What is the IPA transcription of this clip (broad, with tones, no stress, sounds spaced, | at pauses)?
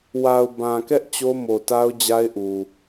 w a˨ ʊ̯ b ã˨ k ɛ˦ ʔ t͡ɕ o˦ m o˨ t a˦ ʊ̯ d͡ʑ a˦ ɪ̯ ʔ u˨